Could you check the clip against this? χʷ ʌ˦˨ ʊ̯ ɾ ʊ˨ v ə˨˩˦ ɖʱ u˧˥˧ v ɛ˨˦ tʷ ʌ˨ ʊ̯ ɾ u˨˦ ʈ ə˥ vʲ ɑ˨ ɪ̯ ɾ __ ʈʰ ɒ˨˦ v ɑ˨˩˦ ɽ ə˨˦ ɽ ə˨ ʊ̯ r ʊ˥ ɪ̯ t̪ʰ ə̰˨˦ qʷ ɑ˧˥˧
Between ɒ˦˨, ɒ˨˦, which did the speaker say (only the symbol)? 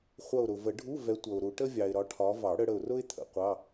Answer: ɒ˨˦